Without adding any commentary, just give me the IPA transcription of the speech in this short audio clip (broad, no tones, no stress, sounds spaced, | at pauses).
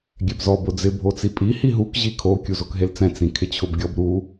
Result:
ɡʲ ɛ b z ɔ b ʊ d͡z ɪ bʱ o t͡s i pʼ i h i ɦ u k ʑ i kʰ o kʲ u z o k ɦ e l t͡s ɛ̃ t͡s ĩ kʰ ɪ t͡ɕʰ ʊ b ɡʲ ɔ b ɾ u